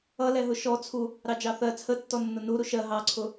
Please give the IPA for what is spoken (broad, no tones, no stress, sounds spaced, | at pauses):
ʌ l ɛ ɦ ʊ ʃ ɔ t͡sʰ u | ɾ ɑ d͡ʒ ɑ θ ɜ t͡sʰ ə tː ɔ nː ʊ n u ɾ u ʃ ɜ ɦ ɑ ǀʰ ʊ